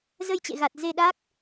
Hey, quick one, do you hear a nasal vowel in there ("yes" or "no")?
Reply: no